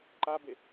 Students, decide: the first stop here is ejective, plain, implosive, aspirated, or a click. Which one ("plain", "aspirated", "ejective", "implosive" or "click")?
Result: click